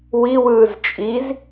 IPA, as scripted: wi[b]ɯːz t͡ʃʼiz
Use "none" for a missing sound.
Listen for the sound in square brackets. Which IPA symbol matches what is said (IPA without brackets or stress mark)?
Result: w